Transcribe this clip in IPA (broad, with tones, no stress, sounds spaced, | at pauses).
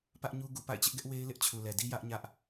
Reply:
p ä˦ ʔ ɲ u˦ ɡ u˨ p a̰˦˨ ɪ̯ t͡ɕ ɪ˦ ʔ ɡ ɛ˦ ʔ w e˦ ɪ̯ l ɪ˦ ʔ t͡ɕʰ u˨ l ɛ˨ d i˦ j ä˦ ʔ ɲ ä˦ ʔ